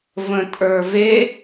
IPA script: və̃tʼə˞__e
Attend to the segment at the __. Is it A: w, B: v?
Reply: B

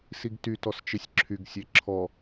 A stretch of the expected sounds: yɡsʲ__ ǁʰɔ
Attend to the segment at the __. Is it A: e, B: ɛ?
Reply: A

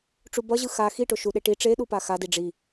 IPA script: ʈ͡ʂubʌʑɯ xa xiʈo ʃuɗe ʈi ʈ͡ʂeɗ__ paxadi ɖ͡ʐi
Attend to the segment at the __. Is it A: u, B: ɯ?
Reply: A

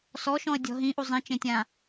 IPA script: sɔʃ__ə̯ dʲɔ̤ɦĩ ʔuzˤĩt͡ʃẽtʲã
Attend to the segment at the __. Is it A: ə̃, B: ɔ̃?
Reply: B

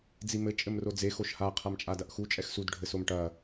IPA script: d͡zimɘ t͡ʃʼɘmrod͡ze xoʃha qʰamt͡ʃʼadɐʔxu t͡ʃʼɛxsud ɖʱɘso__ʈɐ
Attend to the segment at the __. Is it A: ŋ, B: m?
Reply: B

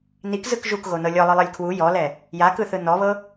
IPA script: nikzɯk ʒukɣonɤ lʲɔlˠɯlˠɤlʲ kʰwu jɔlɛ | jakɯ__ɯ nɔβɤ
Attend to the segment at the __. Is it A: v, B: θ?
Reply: B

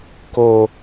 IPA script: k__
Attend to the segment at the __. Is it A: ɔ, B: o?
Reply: B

